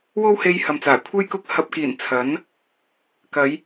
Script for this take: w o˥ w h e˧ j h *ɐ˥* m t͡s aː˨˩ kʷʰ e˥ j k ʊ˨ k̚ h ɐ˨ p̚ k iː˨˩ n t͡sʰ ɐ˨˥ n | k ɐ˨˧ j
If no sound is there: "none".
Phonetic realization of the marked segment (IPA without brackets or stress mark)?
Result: ɐ˨